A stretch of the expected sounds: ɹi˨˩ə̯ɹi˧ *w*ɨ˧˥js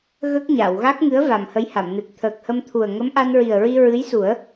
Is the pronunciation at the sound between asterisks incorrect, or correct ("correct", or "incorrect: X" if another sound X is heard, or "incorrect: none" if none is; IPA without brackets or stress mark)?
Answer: incorrect: ɹ